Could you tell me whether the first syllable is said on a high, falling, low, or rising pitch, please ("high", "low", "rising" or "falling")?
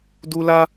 high